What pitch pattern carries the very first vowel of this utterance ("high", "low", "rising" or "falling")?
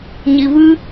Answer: low